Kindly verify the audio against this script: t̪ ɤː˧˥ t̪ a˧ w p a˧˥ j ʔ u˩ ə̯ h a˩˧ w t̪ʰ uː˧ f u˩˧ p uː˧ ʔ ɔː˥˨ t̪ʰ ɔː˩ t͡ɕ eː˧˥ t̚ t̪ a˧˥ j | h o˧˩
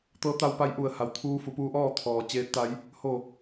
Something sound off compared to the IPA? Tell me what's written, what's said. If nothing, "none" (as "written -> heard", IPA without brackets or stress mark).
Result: none